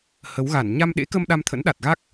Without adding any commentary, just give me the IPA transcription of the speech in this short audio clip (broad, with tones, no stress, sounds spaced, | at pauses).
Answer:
h ə˨˦ w ɣ a˧˩ n ɲ a˧ m ɗ ḛ˧˥ k ə˧ m ɗ a˧ m t̪ʰ ə̰˧˥ n ɗ a˨˩ t̚ ɣ a˦˥ k̚